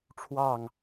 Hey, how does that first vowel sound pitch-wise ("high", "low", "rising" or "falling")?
falling